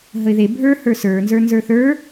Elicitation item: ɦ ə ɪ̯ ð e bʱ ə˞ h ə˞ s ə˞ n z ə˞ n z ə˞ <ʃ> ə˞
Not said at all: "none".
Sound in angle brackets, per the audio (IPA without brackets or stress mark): θ